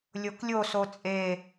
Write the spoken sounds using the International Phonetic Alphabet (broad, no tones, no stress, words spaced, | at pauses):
lʲoklʲo sot͡sʼe